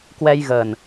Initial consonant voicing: voiceless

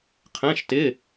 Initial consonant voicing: voiceless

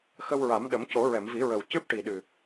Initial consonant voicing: voiceless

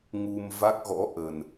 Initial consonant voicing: voiced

